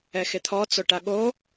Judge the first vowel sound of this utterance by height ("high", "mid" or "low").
mid